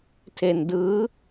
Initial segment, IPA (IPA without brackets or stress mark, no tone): tʰ